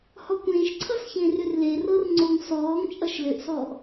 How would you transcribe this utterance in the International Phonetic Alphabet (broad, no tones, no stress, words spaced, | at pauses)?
hɔkʷẽːʃǀʰʌsçẽːr ʏrlerɤr ŋ͡ǀoŋ sɔːŋ t͡ʃʼʌʃlʏʔsɔːʔ